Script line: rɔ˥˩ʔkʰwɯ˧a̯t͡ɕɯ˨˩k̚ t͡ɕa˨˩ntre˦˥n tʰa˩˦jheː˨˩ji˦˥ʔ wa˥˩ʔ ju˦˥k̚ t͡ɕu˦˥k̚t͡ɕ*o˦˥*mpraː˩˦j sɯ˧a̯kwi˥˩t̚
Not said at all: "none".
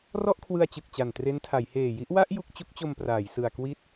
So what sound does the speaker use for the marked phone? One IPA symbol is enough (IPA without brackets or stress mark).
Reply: o˧